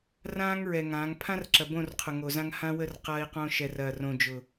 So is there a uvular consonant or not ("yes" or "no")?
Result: yes